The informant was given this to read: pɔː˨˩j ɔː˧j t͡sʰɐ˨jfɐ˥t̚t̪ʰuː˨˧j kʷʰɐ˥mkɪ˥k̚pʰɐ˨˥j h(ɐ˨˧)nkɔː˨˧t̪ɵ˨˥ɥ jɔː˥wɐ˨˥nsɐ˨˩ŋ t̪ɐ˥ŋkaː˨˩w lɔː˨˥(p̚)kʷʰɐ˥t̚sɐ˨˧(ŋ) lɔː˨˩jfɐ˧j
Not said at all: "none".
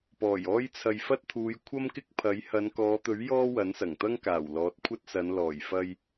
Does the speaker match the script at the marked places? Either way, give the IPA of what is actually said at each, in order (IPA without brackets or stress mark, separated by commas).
ɐ˨˧, t̚, n